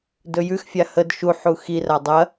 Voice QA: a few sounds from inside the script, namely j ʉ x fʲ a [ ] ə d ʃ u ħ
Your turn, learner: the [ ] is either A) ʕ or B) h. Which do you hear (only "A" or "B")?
B